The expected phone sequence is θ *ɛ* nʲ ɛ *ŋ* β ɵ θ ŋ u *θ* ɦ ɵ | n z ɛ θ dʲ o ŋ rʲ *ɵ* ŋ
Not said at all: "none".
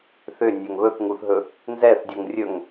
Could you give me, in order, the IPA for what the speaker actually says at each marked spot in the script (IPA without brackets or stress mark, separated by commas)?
ʏ, ŋ, θ, ɵ